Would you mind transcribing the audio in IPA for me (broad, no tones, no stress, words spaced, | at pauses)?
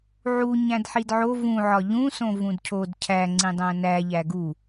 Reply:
ʕu ɲæ̃dħidʕo vũʕɒ ʎũsõ vũdcʰod cʰæŋ͡ǀĩ dˤæ̃næ ʎæɡu